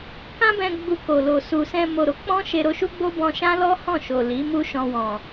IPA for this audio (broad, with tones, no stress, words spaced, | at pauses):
kã˦bɛ̃˧ ɡ͡bu˧ko˨lo˨ su˨sɛ̃˧ mo˨ɾo˨˦k͡pɔ̃˦ ʃe˧ɾo˧ʃu˦ɡ͡bo˦ bɔ̃˧ʃã˦lɔ˦ hɔ̃˦˨ʃo˨ li˨˦mu˦ ʃɔ̃˧wɔ̃˨